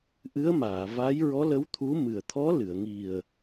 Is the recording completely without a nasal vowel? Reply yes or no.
yes